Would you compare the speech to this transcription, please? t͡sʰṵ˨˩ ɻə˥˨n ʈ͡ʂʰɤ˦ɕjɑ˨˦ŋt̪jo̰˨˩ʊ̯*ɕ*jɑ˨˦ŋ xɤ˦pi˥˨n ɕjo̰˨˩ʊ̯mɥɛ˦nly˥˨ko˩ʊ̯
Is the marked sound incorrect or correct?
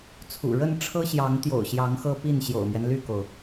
correct